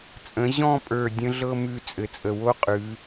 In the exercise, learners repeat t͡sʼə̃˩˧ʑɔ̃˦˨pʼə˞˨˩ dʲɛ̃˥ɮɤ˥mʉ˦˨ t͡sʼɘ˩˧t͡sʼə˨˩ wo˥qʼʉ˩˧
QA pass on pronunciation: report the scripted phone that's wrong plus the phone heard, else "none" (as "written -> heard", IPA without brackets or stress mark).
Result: ɛ̃˥ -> ə̃˥